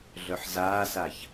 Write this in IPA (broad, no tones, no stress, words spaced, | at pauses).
ɮœħzaːsaç